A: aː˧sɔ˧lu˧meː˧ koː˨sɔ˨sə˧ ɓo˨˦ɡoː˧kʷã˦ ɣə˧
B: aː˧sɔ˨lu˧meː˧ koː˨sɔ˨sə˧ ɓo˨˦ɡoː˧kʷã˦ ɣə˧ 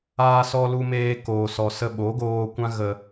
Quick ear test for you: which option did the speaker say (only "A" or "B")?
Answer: A